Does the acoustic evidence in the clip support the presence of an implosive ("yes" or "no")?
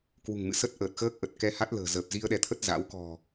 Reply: yes